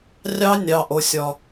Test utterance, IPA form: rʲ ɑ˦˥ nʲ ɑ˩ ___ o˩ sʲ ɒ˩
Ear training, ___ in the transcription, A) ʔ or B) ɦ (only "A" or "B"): A